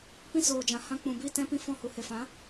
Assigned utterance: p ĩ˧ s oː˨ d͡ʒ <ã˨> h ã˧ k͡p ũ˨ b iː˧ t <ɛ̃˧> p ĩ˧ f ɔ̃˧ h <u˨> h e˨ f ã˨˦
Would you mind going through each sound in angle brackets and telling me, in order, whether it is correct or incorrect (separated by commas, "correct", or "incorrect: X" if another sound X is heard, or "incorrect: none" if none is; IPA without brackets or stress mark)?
correct, correct, correct